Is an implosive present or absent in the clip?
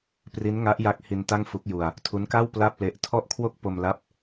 absent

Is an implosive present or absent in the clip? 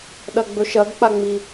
present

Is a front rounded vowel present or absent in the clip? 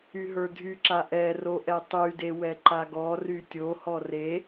present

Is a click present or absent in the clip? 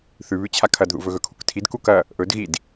absent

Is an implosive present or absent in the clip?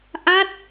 absent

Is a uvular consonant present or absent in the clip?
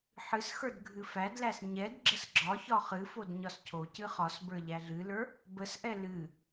present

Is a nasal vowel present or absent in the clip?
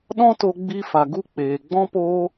present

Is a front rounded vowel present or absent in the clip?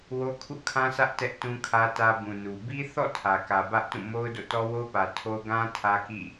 absent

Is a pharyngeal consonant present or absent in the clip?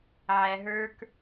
present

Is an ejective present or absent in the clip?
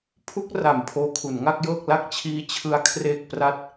absent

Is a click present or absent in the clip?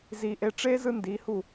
absent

